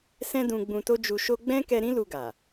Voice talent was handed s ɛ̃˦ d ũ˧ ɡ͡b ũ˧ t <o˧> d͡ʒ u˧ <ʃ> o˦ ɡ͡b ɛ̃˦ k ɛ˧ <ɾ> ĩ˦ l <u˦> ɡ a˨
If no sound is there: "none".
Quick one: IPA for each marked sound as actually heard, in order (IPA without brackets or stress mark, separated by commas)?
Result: o˦, ʃ, ɾ, u˧